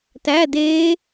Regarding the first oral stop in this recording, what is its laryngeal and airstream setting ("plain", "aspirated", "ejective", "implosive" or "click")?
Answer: plain